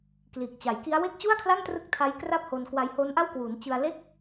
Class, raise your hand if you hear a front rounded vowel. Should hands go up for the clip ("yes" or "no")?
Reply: no